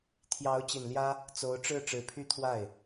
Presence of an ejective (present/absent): absent